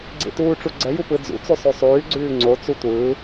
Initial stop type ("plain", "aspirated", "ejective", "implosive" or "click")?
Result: click